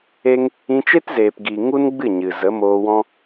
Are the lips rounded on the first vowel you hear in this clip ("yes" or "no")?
no